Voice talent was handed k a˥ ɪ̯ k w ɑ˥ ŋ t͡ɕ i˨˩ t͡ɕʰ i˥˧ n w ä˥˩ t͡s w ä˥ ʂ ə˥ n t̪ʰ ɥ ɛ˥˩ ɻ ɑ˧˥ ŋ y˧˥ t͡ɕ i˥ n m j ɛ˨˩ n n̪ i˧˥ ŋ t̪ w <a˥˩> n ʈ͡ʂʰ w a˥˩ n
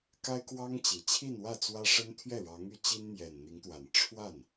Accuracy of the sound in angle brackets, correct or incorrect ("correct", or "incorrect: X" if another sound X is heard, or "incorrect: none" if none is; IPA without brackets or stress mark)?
incorrect: a˨˩